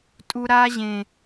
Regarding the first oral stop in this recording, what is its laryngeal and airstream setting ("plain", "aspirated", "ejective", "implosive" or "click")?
ejective